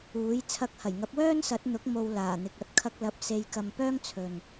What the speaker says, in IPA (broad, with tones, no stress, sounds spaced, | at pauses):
uː˨˥ j t͡sʰ ɐ˧ k̚ h ɐ˨˩ j ŋ ɐ˨˥ p̚ w œː˥ n s ɐ˨˥ t̚ n̪ ʊ˨˥ k̚ m o˧ w l aː˨˩ n̪ ɪ˨ k̚ ɐ˧ t̚ kʰ ɐ˧ k̚ l ɐ˨˥ p̚ s e˧ j k ɐ˧ m p œː˥ ŋ t͡sʰ ɵ˨ n